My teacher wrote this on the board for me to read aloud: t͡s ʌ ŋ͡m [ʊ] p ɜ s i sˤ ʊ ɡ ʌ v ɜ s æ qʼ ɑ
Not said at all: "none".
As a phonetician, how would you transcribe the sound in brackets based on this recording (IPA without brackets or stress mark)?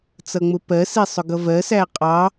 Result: ʊ